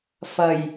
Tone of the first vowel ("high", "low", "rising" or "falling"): low